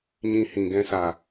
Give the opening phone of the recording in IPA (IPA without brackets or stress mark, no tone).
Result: ɲ